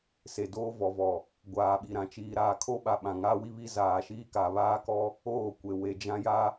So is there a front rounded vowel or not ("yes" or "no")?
no